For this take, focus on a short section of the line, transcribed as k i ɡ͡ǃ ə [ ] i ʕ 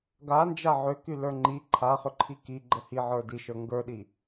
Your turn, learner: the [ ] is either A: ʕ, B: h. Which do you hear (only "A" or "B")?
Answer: B